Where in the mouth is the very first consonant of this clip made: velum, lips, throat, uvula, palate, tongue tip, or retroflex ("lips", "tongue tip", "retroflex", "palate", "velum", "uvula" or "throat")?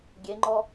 velum